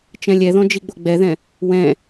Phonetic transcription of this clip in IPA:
t͡ʃ ɛ̃ lʲ ɛ ð ɔ̃ d͡ʒ i ɡ͡b o ɡ͡b ɛ ð ɛ̃ | w ɛ̃

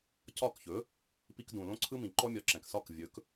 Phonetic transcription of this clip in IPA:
c ɒ˥˩ k ç ɵ˩˥ | p i˧ k d ũ˩ l õ˥ ǀʰ ɯ˥ m ĩ˩ ǃ ɔ˥ mʲ ɒ˩˥ ǁ ɛ̃˩ k s ɒ˥˩ k vʲ ɵ˩˥ k

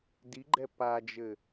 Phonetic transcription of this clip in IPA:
d i ɡ͡ǃ ɛ p a d͡ʒ ɘ

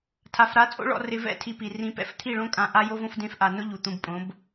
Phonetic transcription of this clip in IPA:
tʰ a˨ f ɾ a˨˦ t͡sʼ o̰˦ ɭ ɔ̰˧ r ɪ˧ v ɛ̰˦˨ tʰ i˧ p i˨ r ĩ˧ p ɛ̰˦ f t̪ʰ i˦˨ ɭ õ˦ kʼ ã˧ ʔ a˦ j o˦ v õ˦ f d ẽ˦ f ʔ a˧ n ʊ˦ ʎ u˨ t̪ ũ˧ b pʼ õ˨˦ b

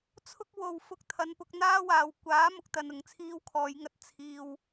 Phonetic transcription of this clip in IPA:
t͡sʰ ʊ˥ k̚ w o˨ w f ʊ˧ k̚ t̪ʰ ɐ˨˧ n p ʊ˧ k̚ n̪ aː˥ w aː˨ w kʷ aː˨˥ m ʊ˨˥ k̚ t̪ ɐ˧ n ʊ˨ ŋ t͡sʰ iː˥ w kʰ ɔː˨˧ j ŋ ɐ˧ t̚ t͡sʰ iː˧ w

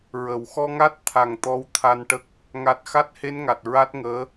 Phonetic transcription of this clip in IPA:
ɹ ə˨˩˨ w x ɔ˧ ŋ a˦˥ t̚ t̪ʰ a˨˩ ŋ t̪ ɔ˧˥ w t̪ʰ a˧ n ʈ ə˦˥ k̚ | ŋ a˨˩ t̚ x a˦˥ t̚ h e˧˥ n ŋ a˨˩ t̚ ɹ a˦˥ t̚ ŋ əː˧˥

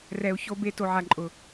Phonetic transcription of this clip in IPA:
r ɛ˨ u̯ ç o˧ b e˧ t o˨ ʕ a˨ ǃʼ ʊ˨

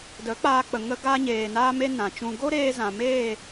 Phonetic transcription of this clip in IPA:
d ə˨˦ k͡p aː˧ k͡p ə˨ ŋ ə˧ ɡ a˧ ɲ eː˨ n aː˧ m e˦ n ã˨ t͡ʃ ũ˧ ɡ o˦ ɾ eː˧ z ã˨ m eː˦˨

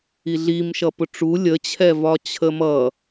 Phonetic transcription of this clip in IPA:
i ɮ i m ʃ ʌ p ʊ ʈ͡ʂ u lʲ ə t͡ɕʰ ɛ v ɒ t͡ɕʰ ə m ʌ

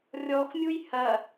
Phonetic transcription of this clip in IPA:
rʲ ɔ x mʲ u j h ɐ

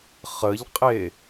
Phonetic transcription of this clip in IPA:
χ ə ʎ qʼ e

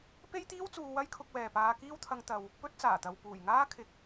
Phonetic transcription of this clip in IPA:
p e˥ j t̪ iː˥ w t͡s uː˧ w ɐ˥ j kʰ ʊ˧ k̚ w ɛː˨ p aː˧ k iː˥ w t̪ʰ ɐ˧ ŋ t̪ ɐ˨ w | p ɵ˧ t̚ t͡s aː˨˩ t̪ ɐ˨ w p uː˨˩ j ŋ aː˥ kʰ ɪ˨ k̚

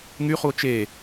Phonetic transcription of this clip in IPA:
ŋ y χ u o̯ t͡ʃ e

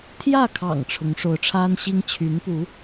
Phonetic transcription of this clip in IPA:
t̪ʰ j ä˥˩ kʰ ɑ̰˨˩ ŋ ʈ͡ʂʰ ʊ˧˥ ŋ ʂ o˧˥ ʊ̯ ʈ͡ʂʰ a˥ n ɕ i˥ ŋ t͡ɕʰ y˧˥ n p u˧˥

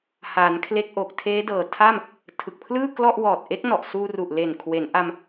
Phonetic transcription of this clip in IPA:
h aː˩˦ n kʰ l e˦˥ k̚ ʔ o˨˩ k̚ tʰ eː˦˥ d ɤː˨˩ tʰ a˥˩ m | tʰ ɯ˨˩ k̚ pʰ l ɯː˥˩ k l ɔ˥˩ ʔ w ɔː˨˩ t̚ ʔ e˦˥ k̚ n ɔ˨˩ ʔ s uː˧ r u˨˩ ʔ l e˨˩ n kʰ w e˩˦ n ʔ a˧ m

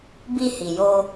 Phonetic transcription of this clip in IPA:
b i˧ h i˨ j o˧

